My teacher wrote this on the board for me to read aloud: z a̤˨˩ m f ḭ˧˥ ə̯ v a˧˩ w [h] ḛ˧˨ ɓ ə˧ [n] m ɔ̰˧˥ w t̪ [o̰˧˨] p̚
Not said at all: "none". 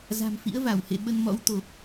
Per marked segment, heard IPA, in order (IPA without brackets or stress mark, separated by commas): h, n, o˨˩